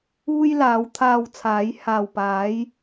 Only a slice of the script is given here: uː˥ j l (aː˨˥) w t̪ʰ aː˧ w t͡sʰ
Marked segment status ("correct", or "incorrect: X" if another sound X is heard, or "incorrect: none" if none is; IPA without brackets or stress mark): correct